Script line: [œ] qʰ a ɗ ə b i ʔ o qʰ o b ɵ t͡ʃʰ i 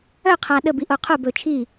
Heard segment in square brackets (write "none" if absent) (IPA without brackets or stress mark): œ